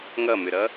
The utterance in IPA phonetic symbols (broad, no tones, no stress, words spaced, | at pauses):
ŋʌmʏɾʌ